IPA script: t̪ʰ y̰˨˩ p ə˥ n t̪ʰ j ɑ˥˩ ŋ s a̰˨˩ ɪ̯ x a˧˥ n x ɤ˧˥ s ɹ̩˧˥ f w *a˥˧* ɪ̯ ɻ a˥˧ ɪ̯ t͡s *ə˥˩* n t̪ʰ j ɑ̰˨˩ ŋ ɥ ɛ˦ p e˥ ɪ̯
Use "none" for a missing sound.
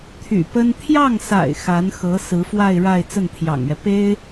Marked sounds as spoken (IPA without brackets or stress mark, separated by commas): a˥˧, ə˥˩